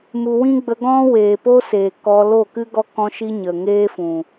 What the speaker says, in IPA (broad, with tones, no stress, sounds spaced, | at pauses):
m u˨ w ĩ˦ ɡ͡b ə˧ ɡ ɔ̃˦ w eː˨ p o˦ s eː˨ k ɔ˧ l o˦˨ k ɨ˦ ɡ ɔ˦ k ɔ̃˦ ʃ i˦ ɲ ə˨ ŋ eː˦ f ũ˨